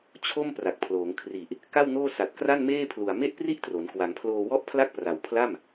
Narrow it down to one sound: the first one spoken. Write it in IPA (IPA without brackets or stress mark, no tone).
t͡ɕʰ